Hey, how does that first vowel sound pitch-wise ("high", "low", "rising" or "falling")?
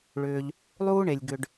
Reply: low